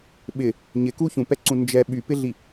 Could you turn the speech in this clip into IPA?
ɓɪ | ɲɪku çũpɛǀũ nd͡ʒɛ ɓypɪɮi

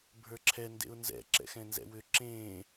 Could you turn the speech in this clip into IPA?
bʱə˞ǁʰɛ ndḛʊ̯nzɛ̰ ǁɛ̰xɛ̃nzɛ̰wʏ ǁẽː

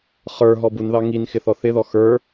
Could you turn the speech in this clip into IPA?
χə˞ ɦɔbunðɑ ŋin xɪθɔθɪðɔ xə˞

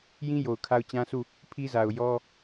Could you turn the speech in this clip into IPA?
jĩ˦ jo˨ʊ̯kʰa˦ʊ̯ t͡ɕã˦su˦˨ | pʰi˦za˨ʊ̯ jɔ˦

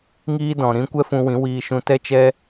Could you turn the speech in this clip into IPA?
ŋiː˦dɔ̃˨ ɾĩ˦ kʷɛ˦fũ˧wĩ˨˦ wiː˧ʃũ˧ tɛ˦t͡ʃɛ˦

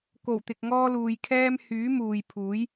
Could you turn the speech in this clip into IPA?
ko˨˩wt̪ɪ˨k̚ŋɔː˥ luː˨jkʰɛː˥m hyː˨˥ muː˨jpʰuː˨˥j

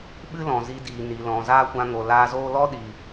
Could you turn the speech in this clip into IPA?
ɓɨ˦lɔ̃˨ zi˧diː˨ ni˨ lɔ̃˨zaː˦kʷã˧ŋo˨ laː˧zoː˦ lɔ˦ɗi˨

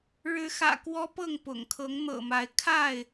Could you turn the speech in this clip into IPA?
ɻɻ̩˨˦xä̰˨˩ kwɔ˦pɤ˥˨ŋpʊ̰˨˩ŋ kʰɤ˨˦ŋn̪ɤ̰˨˩ma˨˦ɪ̯ kʰa˥˨ɪ̯

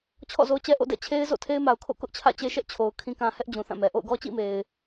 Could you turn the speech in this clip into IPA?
t͡ɕʰɔ̰˦˨zo˦t͡ɕɛ˦ ʔo̰˦˨dɛ̰˦˨t͡ɕʰe˦ɪ̯ zo̰˦˨tʰe˦ɪ̯ma˨ʊ̯ kʰo̰˦˨kʊ˦ʔt͡ɕʰä̰˦˨ t͡ɕe˦ʃɛ˦ʔ t͡ɕʰo˨ʊ̯ kʰĩ˦kã˦ hɛ˦ʔ d͡ʑũ˨θã˦˨mɛ˨ ʔo̰˦˨ʊ̯ɡɔ˦t͡ɕḭ˦˨me˨ɪ̯

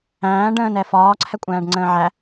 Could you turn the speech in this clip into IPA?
æ̃ː ɖə̃ːnɛ fɒːǀʰɛkʷʼæ̃ːɖŋ͡ǀə̃ː ʕæ

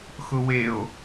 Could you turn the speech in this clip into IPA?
xʊweo̯

